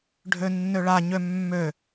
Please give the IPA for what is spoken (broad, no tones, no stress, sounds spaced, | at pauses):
ɖʱ ø nː ø ɭ a ɲ ø mː ø